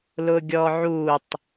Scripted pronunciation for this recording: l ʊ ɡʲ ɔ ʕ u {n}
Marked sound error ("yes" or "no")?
yes